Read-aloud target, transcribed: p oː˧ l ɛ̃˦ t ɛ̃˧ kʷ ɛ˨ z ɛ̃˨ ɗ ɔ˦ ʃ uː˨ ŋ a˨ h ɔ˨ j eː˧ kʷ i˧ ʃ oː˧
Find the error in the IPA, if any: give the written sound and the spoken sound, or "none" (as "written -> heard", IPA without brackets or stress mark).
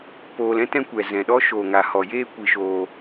uː˨ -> oː˨